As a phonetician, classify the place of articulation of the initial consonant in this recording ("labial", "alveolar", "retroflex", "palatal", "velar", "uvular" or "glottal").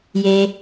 palatal